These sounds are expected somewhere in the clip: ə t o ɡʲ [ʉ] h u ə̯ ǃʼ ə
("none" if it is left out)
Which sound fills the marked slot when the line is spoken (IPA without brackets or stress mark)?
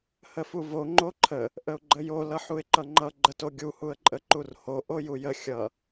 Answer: u